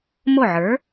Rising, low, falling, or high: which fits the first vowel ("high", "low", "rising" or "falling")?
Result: falling